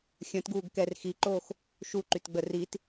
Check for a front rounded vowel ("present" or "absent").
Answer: present